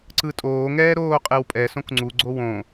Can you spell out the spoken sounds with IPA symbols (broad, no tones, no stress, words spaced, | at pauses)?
ǀɯtʼoː ŋɛːɾoːqʼewpʼɛ sõkŋ͡ǀu ɡ͡ǀowõ